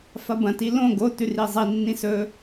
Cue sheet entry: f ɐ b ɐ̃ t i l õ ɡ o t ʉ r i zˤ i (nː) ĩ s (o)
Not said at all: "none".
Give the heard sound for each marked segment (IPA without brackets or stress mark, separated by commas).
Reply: nː, ɵ